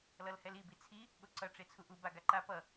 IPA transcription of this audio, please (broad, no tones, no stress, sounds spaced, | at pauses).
l ʌ l h ɛ l i b i t͡sʰ i | ɠ o ǀ ʌ ʈ͡ʂ e t͡sʰ u ʔ u b a ɡ a ǃ a p ʌ